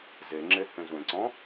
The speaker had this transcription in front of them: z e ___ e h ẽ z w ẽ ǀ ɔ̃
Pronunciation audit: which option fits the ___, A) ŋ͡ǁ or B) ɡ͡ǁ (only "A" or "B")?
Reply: A